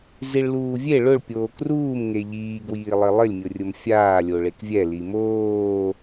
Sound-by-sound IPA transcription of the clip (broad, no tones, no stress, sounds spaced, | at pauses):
z i ɭ l uː vʲ e ɭ ʊ ɭ pʲ oː k r uː m ŋ e ʎ iː ɡ w iː lˠ ɪ lˠ ɪ lʲ mʲ ʊ rʲ ʊ m fʲ aː lʲ o ɭ e k vʲ ɛ l i m oː